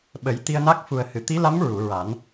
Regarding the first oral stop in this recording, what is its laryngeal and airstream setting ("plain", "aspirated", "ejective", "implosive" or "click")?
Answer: implosive